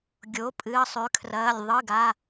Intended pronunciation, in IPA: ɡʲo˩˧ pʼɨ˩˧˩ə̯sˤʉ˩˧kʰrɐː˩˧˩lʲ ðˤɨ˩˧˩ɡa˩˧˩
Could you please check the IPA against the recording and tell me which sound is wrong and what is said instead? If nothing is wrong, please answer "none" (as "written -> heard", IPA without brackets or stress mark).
none